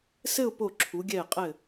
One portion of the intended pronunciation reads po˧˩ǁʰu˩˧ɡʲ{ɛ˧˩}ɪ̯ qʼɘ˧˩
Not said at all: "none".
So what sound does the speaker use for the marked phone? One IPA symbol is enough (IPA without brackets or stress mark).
ɛ˧˩